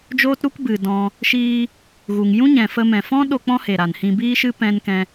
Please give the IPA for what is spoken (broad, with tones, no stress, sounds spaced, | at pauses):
d͡ʒ oː˦ t ɾ u˦ k b ɨ˨ d ɔ̃˧ | ʃ iː˧ | ɣ u˨ ŋ j ũ˦ ɲ ɛ̃˨ f ə˧ m ɛ̃˨ f ɔ̃˦ ɗ o˧ k͡p ɔ̃˦ h e˨ ɾ a˨ n h ĩ˧ b iː˦ ʃ ɨ˦ p ɛ̃˦ n k ɛ̃˧